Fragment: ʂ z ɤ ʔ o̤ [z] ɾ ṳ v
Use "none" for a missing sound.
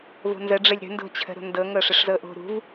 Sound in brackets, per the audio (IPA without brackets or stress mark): none